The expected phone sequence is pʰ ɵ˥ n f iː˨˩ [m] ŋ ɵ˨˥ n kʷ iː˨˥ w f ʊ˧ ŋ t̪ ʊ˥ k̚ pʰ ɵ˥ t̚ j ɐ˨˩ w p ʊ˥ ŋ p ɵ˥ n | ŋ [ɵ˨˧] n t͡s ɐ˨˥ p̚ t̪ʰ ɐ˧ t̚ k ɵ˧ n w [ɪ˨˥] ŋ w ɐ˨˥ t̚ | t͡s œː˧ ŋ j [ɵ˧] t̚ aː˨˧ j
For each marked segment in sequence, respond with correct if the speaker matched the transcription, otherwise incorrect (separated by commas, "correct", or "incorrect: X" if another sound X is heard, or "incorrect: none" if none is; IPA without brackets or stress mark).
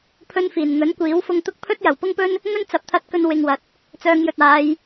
incorrect: n, incorrect: ɵ˥, incorrect: ɪ˧, incorrect: ɵ˨